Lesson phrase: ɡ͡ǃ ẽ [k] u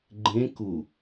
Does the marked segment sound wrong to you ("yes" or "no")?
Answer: no